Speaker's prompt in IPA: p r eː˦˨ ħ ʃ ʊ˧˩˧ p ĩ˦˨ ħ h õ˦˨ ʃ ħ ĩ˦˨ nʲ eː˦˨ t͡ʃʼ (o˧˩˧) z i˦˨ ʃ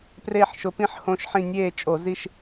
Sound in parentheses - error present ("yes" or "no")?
no